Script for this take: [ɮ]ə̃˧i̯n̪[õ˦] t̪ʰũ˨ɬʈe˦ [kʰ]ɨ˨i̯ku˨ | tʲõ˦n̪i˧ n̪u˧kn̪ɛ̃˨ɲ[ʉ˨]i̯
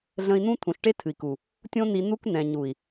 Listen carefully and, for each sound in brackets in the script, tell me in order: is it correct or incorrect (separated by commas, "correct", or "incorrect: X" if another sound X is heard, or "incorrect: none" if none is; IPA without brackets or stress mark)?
correct, incorrect: ũ˦, incorrect: tʰ, incorrect: u˨